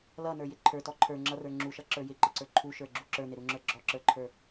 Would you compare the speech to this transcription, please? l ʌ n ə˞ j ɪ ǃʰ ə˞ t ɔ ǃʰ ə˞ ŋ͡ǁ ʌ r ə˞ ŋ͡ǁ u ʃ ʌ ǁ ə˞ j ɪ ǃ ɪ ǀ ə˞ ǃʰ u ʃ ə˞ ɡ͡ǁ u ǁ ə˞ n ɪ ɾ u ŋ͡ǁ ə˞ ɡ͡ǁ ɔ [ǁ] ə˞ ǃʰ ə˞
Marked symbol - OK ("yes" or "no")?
yes